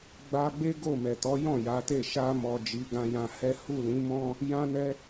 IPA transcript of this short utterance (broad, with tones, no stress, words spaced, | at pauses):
ɡ͡ba˧ɡ͡be˦ ɡo˦˨ mɛ˨tɔ˨˦jɔ̃˦˨ ja˨˦te˦˨ ʃa˧mɔ˨ d͡ʒi˨˦ɡã˧jã˧hɛ˦ hu˦˨lĩ˨˦mɔ̃˦ | jã˧nɛ˧